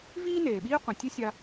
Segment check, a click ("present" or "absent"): absent